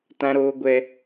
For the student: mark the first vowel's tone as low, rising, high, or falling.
high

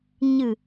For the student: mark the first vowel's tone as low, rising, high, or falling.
low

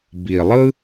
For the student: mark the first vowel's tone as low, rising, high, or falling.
low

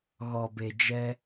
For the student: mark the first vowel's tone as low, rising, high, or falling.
low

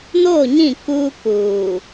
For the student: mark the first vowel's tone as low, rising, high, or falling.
falling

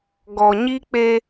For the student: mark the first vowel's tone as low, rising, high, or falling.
low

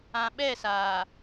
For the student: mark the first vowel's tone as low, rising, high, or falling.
low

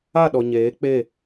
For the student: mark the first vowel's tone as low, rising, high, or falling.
falling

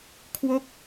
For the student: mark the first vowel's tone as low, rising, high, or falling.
falling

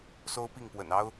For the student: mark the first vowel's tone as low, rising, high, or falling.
high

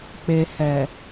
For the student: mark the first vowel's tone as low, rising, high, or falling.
low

